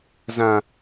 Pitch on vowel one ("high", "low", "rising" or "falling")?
high